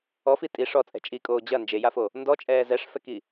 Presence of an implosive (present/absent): absent